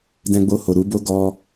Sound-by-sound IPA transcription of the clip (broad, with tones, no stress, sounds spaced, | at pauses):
d ɛ̃˧ ɡ͡b o˧ h o˨ ɾ u˨˦ b o˦ ɡ ɔ˧